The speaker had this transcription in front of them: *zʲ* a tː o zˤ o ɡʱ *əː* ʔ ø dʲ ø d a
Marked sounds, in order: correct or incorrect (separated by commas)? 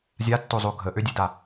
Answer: correct, incorrect